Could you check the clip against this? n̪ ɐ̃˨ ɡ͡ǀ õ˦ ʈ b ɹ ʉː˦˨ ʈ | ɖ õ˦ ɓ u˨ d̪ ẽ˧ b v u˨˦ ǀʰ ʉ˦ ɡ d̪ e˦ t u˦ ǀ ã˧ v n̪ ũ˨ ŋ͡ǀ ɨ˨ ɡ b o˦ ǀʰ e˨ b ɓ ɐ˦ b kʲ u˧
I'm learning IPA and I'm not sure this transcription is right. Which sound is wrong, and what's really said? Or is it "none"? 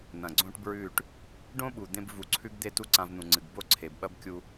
none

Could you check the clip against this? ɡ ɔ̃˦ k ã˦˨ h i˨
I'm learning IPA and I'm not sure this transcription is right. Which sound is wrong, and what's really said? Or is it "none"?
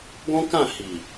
none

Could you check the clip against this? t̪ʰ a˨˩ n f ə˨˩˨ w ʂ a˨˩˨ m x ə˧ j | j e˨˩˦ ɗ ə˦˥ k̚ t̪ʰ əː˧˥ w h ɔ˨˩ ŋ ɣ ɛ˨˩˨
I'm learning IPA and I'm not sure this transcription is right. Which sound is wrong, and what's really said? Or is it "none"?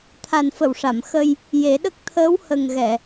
ɔ˨˩ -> ə˨˩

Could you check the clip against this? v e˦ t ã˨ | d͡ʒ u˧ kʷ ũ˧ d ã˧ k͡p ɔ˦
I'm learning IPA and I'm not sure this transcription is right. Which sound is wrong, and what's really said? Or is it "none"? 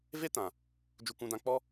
none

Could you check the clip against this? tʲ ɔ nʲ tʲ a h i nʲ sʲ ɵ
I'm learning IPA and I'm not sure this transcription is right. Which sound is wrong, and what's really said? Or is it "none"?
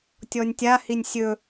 none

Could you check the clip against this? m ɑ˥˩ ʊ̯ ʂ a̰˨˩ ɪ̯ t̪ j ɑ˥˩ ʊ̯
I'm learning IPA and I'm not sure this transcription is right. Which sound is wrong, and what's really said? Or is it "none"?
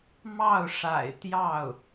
none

